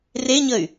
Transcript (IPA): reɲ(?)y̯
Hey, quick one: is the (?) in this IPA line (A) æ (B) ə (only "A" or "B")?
B